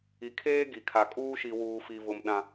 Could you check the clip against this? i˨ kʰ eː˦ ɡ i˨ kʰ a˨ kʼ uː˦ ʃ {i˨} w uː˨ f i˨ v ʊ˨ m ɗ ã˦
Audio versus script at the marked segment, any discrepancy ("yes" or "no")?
no